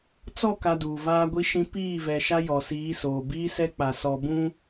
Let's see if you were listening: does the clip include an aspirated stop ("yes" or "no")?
no